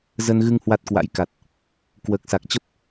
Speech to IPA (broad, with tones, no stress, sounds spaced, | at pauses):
z ə˧ n ɣ ɨ˧ ŋ h w a˦˥ t̚ k w a̰˧˥ j k a˨˩ t̚ | k w əː˨˩ k̚ s a˨˩ k̚ t͡ɕ ə˦˥ p̚